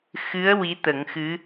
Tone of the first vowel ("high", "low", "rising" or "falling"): rising